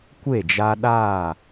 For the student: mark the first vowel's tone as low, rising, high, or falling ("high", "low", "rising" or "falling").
falling